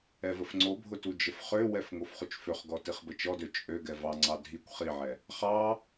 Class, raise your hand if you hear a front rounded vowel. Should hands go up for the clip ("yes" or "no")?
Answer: yes